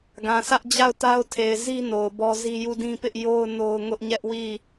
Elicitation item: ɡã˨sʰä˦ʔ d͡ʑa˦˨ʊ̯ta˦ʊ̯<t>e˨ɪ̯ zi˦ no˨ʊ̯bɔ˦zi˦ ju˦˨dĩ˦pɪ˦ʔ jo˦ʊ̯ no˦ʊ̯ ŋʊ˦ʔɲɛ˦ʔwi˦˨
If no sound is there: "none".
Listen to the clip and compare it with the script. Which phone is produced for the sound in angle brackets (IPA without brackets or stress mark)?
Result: tʰ